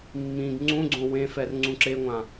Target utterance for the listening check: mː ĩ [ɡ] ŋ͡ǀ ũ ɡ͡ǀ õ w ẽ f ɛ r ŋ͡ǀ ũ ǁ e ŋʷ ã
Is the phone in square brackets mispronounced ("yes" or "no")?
no